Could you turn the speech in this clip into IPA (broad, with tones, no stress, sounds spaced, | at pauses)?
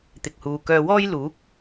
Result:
t̪ ɪ˨ k̚ h uː˨ k œː˧ w ɔː˥ j l uː˨˥ k̚